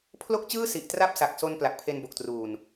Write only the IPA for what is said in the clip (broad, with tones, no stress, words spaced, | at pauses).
pʰlo˥˩k̚t͡ɕɯː˥˩ si˨˩ʔtra˥˩p̚sa˨˩k̚so˧n pla˨˩k̚pʰe˧nbo˨˩k̚truː˨˩n